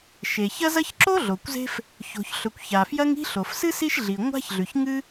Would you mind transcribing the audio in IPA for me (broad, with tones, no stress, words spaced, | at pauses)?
ʃe˩çɐ˥zɐ˥ç ǁo˥ ɮo˩kʷze̤˥f | ço̤˩çɬɵ˩kʷ ça˩fjɐ˥ŋi̤˥ ɬo˩fsɨ˥ si˥ʃɮi˩ŋʷa̤˥çɮʉ˩ç ŋɨ˥